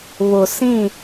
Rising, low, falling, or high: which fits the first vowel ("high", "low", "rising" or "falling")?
low